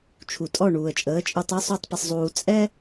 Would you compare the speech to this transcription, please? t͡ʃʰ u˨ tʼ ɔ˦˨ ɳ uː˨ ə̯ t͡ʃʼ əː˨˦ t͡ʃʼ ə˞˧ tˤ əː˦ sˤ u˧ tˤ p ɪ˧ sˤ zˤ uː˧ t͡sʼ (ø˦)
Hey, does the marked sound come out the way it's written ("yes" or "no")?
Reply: no